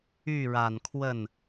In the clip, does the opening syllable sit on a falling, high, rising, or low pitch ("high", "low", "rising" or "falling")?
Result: falling